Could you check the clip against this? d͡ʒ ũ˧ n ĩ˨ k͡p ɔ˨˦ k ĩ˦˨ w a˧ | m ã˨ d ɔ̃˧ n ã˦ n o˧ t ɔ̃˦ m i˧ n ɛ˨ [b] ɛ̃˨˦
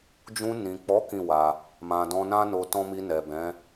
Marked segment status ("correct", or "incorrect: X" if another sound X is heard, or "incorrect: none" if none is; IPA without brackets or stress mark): correct